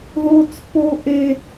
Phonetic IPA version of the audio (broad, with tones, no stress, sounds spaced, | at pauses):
ð o˦ t͡s p o˦ ʔ e˦